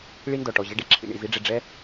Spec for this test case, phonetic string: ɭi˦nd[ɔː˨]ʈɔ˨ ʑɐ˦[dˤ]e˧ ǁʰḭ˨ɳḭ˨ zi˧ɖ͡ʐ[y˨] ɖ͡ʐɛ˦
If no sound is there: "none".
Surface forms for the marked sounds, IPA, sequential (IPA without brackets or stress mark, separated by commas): ɔ˨, ɖ, e˨